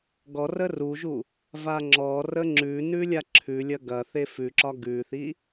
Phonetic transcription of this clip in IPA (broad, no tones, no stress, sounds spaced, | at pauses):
ɡ ɔ r ə r u ʒ u | v a ŋ͡ǁ ɔ r ə ŋ͡ǁ ʉ n ʉ lʲ a ǁʰ ʉ lʲ ɐ ɡ ɐ θ e f ʉ ǁ ɒ ɡ ʉ θ i